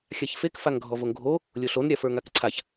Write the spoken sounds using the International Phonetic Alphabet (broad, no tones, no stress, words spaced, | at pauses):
xʲaçfek faŋɡʱɔvoŋɡʱo | lʲoɬon ɾʲafə˞ŋakǀʰaç